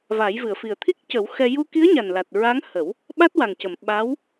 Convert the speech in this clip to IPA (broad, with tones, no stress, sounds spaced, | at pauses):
v a˨˩˦ j v ɨ˨˩˨ ə̯ f i˨˩ ə̯ t̪ʰ i˦˥ k̚ c ə˨˩˦ w x ɛ˧ j u˧ k i˧˥ ə̯ ɲ a˨˩ n l a˨˩ t̚ ɹ a˧˥ ŋ h ə˨˩˦ w | ɓ a˦˥ t̚ w a˨˩ ŋ c ə˨˩˨ m ɓ a˧˥ w